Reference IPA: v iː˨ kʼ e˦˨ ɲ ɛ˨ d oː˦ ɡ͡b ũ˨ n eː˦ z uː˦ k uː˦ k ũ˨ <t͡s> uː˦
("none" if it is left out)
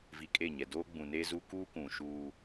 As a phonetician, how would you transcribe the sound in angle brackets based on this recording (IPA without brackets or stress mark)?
ʃ